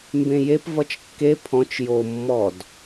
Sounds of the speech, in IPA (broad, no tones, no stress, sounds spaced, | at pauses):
m b ẽ j e p v ʌ t͡ʃ kː e pʰ ɔ̃ t͡ʃ j o mː ɔ d